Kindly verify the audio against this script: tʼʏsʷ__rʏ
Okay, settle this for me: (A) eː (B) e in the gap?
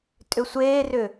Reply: A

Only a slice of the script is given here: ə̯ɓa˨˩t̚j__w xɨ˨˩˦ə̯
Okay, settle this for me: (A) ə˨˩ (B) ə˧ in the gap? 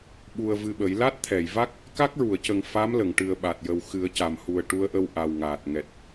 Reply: A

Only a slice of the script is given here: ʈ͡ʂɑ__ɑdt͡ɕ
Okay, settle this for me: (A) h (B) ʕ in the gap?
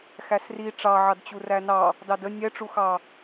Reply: B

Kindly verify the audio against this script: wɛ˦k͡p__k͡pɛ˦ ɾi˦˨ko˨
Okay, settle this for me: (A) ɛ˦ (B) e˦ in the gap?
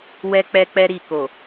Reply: A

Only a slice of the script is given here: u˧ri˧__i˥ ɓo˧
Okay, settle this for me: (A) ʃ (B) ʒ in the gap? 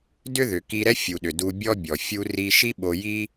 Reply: A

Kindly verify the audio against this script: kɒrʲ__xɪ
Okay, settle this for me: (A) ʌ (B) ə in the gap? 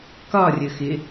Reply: B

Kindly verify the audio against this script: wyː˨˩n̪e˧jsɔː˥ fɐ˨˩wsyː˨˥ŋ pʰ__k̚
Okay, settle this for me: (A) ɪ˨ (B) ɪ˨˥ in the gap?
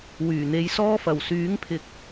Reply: B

